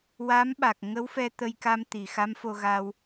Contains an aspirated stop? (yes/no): no